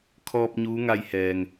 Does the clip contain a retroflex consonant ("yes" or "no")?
no